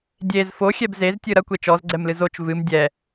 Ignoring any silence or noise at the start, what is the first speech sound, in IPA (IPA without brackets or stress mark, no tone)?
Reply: dʲ